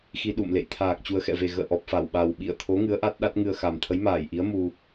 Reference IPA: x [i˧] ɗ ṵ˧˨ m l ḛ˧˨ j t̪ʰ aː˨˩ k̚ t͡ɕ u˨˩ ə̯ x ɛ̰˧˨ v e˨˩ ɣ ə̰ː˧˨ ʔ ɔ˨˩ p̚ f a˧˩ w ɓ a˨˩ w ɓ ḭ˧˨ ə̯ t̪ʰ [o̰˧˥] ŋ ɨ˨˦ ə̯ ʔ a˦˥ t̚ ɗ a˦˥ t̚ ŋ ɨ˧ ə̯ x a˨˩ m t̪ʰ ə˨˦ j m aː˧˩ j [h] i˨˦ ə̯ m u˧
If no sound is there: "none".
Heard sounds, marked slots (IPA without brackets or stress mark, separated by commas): i˧, o˨˦, ʔ